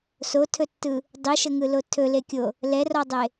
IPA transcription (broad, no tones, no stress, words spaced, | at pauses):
sotʰɵtːɯ | dˤiʃəŋɯlo tʰɵlekʲo | lɛrɔdˤe